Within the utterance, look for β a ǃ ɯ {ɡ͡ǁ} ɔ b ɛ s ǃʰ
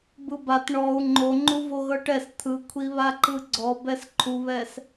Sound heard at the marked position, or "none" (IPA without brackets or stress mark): ɡ͡ǀ